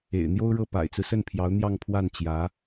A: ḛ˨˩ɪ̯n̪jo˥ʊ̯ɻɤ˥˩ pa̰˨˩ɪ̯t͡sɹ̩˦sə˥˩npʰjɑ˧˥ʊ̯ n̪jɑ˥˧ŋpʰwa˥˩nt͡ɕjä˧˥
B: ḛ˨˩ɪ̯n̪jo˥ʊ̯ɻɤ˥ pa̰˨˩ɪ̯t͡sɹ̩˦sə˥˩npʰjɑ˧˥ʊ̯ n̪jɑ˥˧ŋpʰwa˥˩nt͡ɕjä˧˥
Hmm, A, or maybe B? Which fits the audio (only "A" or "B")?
A